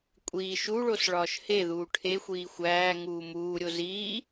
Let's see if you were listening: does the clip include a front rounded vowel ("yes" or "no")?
no